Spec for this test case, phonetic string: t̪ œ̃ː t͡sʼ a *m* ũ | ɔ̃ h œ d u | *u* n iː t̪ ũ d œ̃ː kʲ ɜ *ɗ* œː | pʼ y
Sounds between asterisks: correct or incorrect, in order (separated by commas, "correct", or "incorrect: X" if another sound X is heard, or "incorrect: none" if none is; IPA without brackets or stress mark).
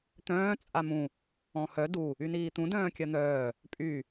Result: correct, incorrect: y, incorrect: n̪